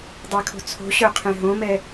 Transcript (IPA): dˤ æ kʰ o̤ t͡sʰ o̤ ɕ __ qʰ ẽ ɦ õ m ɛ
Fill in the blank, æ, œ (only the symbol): œ